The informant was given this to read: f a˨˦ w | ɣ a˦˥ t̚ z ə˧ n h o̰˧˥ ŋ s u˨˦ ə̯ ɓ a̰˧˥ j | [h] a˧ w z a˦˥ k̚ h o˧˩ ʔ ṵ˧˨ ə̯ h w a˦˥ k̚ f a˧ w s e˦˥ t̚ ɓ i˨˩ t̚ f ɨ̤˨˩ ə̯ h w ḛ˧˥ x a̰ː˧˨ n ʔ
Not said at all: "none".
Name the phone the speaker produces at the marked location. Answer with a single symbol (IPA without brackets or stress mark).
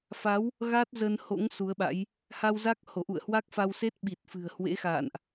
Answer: h